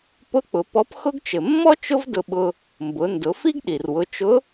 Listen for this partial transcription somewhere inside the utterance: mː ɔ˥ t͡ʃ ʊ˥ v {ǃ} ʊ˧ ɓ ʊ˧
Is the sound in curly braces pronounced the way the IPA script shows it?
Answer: no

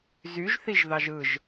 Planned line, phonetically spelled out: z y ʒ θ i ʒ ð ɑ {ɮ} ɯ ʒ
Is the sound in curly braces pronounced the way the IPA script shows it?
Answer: no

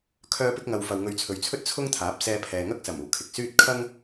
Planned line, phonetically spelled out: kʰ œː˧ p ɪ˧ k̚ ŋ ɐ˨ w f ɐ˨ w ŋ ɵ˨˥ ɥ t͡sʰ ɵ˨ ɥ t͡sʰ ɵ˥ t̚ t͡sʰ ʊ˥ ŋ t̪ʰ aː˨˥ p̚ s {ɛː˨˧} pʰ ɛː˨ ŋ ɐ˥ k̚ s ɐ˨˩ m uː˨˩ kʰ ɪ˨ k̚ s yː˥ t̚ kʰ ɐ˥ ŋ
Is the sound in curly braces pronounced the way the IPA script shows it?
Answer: no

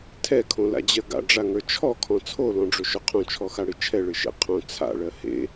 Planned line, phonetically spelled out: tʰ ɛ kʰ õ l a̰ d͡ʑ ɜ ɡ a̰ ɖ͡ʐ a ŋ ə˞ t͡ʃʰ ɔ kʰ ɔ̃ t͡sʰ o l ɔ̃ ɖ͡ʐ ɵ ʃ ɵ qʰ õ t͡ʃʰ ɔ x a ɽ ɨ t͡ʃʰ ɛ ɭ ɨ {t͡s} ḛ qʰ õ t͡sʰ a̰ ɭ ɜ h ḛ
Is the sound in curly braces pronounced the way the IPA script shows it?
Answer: no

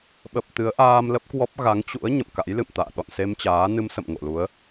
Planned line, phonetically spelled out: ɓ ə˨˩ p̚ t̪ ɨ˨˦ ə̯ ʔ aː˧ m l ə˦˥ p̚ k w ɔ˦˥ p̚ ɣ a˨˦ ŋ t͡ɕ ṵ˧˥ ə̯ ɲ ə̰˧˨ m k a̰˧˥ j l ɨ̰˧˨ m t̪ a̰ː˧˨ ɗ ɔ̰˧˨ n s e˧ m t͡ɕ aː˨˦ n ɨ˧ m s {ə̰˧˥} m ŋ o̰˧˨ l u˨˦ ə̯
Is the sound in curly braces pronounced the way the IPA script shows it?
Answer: no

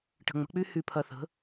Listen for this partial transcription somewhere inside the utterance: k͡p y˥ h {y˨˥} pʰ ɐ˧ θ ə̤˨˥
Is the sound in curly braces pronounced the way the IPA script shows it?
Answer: no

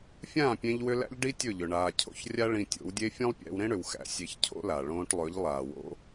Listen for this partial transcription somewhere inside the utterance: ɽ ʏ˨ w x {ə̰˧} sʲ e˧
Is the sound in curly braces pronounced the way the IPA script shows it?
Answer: no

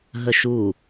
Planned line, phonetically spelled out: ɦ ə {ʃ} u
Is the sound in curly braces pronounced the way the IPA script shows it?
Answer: yes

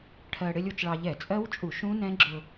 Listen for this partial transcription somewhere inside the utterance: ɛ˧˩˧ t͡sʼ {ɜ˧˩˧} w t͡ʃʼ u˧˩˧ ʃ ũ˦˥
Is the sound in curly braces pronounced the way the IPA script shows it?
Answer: no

